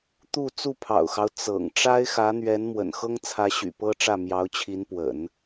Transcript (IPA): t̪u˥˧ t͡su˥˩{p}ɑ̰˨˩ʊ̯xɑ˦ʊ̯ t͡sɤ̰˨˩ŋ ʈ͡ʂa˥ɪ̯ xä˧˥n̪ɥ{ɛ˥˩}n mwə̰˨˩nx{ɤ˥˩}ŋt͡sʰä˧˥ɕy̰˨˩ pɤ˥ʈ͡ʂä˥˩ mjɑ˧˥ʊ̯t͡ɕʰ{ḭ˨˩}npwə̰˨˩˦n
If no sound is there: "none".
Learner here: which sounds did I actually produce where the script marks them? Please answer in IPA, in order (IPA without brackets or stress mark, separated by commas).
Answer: pʰ, ɛ˧˥, ɤ˥, i˧˥